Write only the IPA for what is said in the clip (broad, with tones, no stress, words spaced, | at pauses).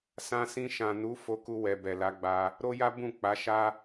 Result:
sã˧sĩ˧ʃã˨ nu˨˦ fo˧ku˧wɛ˨ bɛ˨la˨˦ɡ͡ba˧ | ɾo˦ja˦ bũ˦˨ k͡pa˨˦ʃa˦